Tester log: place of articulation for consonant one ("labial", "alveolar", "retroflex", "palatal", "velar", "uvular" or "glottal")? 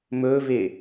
labial